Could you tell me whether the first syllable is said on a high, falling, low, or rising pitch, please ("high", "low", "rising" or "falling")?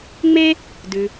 high